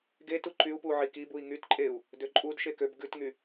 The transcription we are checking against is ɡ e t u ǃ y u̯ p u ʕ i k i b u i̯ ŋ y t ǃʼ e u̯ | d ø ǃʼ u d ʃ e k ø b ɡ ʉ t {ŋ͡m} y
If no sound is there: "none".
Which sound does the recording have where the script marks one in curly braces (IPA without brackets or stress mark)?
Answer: ŋ